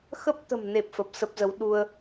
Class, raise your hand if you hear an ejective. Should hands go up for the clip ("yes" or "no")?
no